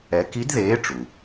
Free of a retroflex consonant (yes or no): no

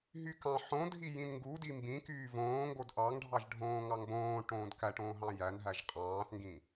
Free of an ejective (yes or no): no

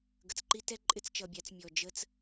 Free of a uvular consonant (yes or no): yes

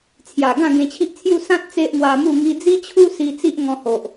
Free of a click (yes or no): yes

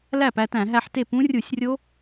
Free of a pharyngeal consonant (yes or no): no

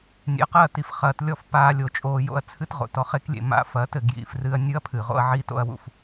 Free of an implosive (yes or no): yes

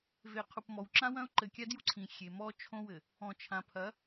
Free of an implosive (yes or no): yes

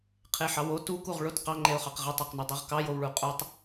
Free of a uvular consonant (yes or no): no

